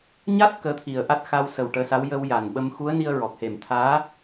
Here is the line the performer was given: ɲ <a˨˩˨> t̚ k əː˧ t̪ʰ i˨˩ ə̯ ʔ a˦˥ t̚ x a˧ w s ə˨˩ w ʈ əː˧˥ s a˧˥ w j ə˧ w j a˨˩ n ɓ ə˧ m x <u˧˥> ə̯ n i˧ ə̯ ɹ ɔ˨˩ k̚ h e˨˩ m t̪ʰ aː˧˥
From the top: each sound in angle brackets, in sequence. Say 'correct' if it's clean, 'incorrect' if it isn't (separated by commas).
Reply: incorrect, correct